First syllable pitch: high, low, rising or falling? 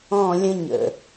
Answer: falling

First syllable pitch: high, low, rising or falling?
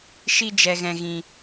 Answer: high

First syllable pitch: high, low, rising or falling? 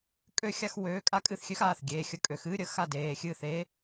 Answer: falling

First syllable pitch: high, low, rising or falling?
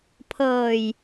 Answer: low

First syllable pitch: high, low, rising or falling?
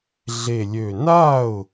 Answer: low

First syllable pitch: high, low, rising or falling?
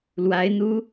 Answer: rising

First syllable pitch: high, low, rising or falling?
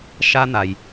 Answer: high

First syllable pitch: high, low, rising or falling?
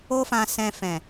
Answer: high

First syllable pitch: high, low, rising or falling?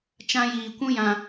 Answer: high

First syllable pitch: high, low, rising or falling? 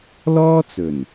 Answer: high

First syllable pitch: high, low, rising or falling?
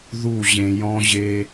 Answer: falling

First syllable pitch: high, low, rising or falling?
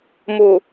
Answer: low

